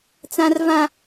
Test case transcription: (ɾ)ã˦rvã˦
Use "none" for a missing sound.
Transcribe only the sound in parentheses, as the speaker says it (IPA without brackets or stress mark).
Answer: t͡s